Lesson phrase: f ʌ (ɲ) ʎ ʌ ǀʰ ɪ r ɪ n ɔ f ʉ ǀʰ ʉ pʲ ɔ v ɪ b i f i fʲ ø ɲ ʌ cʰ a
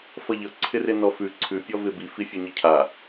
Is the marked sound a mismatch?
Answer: yes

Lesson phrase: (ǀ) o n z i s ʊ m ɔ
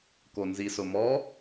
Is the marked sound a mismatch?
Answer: yes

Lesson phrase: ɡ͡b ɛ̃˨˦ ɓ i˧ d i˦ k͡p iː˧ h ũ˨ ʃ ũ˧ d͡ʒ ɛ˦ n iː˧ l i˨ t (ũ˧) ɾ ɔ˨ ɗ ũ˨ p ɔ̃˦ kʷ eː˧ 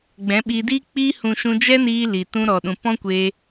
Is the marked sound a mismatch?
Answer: no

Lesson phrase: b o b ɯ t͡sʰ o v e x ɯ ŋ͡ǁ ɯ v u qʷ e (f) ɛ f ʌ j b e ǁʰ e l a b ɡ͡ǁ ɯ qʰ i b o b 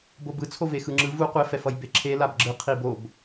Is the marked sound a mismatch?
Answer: no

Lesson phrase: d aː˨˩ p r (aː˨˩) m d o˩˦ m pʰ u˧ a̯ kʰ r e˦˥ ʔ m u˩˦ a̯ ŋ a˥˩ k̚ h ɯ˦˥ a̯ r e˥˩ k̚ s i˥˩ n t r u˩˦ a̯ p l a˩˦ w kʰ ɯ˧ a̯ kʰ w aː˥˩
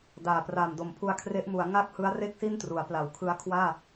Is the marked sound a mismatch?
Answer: no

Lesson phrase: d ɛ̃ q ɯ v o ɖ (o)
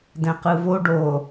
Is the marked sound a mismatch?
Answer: no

